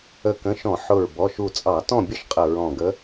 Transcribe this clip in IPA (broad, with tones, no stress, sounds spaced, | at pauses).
ə˧˩ k ə̃˩˧˩ ʃ ɔ̃˧˩˧ ħ ʊ˧˩ ɹ b ɔ˩˧˩ ʃ u˧˩ t͡sʼ ɑ˧˩˧ t ɔ̃˥˨ bʲ ə˥˨ ʃ qʼ ə˧˩ ɹ ɔ̃˧˩ ɡ ə˧˥